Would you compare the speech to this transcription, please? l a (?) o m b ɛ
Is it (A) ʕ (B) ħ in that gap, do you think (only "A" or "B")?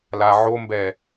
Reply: A